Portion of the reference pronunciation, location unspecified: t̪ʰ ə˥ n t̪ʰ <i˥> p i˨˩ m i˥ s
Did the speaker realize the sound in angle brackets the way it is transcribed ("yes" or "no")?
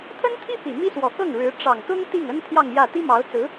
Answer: yes